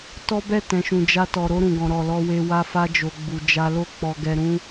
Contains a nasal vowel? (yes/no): yes